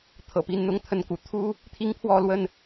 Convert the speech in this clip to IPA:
t̪ʰ ɤ̰˨˩ p i˨˦ n n̪ ʊ˨˦ ŋ t̪ʰ ə˨˦ n k ṵ˨˩ t̪ʰ u˦ | t̪ʰ i˦ ŋ pʰ w ɔ˥˨ l w ə˥˨ n

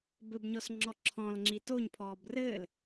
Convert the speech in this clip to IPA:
b ɘ b ɲ ɔ s ŋ͡ǁ ɔ ǁʰ ɔ̃ l ŋ͡ǁ i t o ɲ pʰ ɔː b r ɘː l

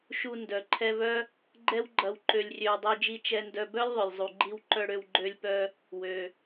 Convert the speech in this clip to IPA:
ʃ u˧ n d œ˩ ǃʰ ɛ˧ v œ˥ | ɡ͡ǃ ɛ˥ w ɡ͡ǃ ɐ˧ w ǃ ø˧ lʲ rʲ ø˧ w dˤ ø˧ d͡ʒ i˧ t͡ʃ ɛ˧ n d œ˧ b œ˥ lʲ ðˤ œ˩ lʲ zˤ u˩ ɡ͡ǃ i˧ w ǃ œ˧ ɽ ø˧ w ɡ͡ǃ ø˧ lʲ p œ˧ | w ø˩

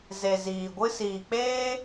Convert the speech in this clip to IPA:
z e˨ z iː˨ ɡʷ ɨ˧ s iː˨ k͡p eː˦

